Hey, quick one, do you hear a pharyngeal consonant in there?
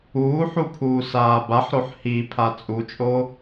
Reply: yes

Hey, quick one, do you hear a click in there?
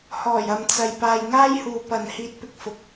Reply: no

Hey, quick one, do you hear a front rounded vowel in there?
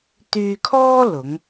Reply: yes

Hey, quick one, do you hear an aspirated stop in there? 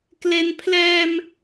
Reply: yes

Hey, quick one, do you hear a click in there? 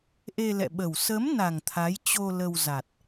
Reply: no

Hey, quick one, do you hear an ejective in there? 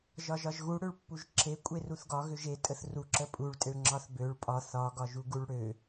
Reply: yes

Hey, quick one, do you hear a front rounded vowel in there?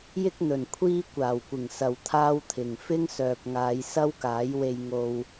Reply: yes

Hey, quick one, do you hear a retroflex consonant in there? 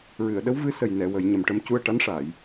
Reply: yes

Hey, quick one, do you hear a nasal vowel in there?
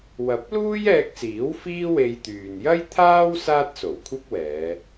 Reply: no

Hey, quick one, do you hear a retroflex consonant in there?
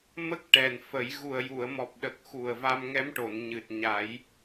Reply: yes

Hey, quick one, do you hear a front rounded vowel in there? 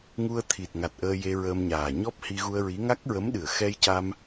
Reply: no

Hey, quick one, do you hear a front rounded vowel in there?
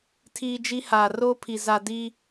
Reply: no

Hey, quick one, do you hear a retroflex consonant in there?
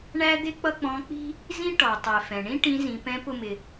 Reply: yes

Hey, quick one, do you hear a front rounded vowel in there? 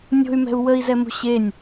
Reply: yes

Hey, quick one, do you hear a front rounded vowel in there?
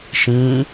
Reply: no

